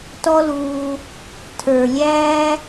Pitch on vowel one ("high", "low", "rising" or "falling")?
high